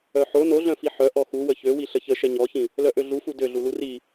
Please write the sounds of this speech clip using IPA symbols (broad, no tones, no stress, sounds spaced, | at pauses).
œ ħ o n o ɮ œ̃ f i ħ œ ʔ ɔ x u w ə ç ø w i ɬ ə ç ə ʃ ɛ ɲ ɔ ç ĩ | l œ ʔ ø ɮ u f u d ø ɮ u l u r i